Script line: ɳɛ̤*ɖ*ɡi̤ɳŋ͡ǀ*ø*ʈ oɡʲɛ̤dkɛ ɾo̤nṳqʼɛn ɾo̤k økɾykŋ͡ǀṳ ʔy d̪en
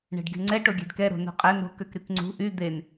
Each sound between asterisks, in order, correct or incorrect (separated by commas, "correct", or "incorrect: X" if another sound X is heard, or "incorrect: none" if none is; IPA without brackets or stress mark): correct, incorrect: ɛ